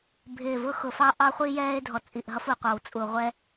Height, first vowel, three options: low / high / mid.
high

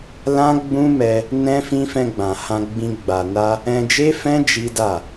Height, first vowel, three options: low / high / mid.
low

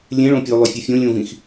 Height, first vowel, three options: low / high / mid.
mid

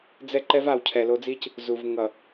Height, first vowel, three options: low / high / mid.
mid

